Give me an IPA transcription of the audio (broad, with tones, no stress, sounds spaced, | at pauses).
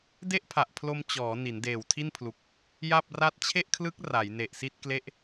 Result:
d e˥˩ ʔ pʰ a˨˩ ʔ pʰ l o˧ m t͡ɕ ɔː˩˦ n i˩˦ n d eː˨˩ w tʰ i˥˩ n pʰ l u˨˩ k̚ | j a˥˩ p̚ r a˥˩ t̚ t͡ɕʰ e˥˩ ʔ kʰ l ɯ˦˥ k̚ r a˩˦ j n e˨˩ ʔ s i˥˩ t̚ k l e˦˥ ʔ